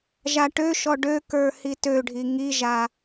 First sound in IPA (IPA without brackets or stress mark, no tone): ʒ